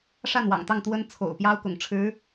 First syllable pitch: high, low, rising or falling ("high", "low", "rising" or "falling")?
falling